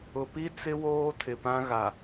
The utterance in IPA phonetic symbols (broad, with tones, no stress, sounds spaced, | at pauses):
ʊ˨ p i˦ t͡s ɪ˦ w oː˦ tʰ ɪ˨ p ã˦ ɣ a˨